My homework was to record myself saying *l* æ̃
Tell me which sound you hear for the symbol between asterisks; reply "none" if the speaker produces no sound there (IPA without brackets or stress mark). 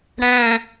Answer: ɽ